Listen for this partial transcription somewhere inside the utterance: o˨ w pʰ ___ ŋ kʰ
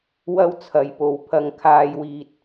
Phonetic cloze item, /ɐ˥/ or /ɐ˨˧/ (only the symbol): ɐ˨˧